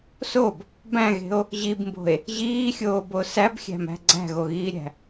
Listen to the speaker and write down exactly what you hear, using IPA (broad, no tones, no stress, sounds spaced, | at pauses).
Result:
s o b | b æ̃ ɣ e̤ o̯ | ʑ i b m b o̤ e̯ | ʑ iː xʲ oː b o s æ b xʲ æ̤ m æ̤ ɡ͡ǀ æ̤ ɣ o ɣ iː ɾʲ æ̤